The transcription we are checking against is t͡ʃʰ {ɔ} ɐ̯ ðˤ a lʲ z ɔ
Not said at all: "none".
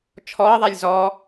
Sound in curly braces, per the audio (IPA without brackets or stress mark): ɔ